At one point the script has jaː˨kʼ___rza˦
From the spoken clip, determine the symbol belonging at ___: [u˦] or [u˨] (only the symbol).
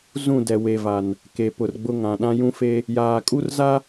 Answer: u˦